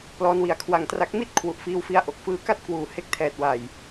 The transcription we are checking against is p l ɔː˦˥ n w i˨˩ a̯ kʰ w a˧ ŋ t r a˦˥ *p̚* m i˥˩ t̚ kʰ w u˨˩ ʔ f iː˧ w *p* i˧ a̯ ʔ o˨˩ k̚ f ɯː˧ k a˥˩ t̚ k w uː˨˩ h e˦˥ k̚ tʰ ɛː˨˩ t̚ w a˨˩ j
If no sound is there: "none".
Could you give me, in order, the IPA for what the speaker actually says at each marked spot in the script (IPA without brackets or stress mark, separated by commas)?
k̚, f